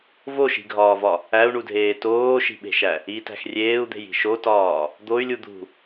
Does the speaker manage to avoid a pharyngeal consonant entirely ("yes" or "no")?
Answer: yes